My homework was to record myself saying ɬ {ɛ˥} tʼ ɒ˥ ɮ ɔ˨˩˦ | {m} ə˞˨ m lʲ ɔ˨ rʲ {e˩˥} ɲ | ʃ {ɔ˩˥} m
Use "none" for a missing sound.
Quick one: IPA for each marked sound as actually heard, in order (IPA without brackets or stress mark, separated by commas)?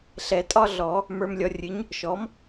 ɛ˨˩˦, m, ɨ˩˥, ɔ˩˥